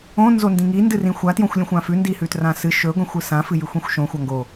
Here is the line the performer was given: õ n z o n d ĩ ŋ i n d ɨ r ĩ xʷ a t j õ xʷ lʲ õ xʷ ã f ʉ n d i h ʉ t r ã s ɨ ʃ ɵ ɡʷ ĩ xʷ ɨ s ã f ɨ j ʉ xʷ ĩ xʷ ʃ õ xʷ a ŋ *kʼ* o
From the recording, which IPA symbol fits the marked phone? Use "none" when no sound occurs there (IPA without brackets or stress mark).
ɡ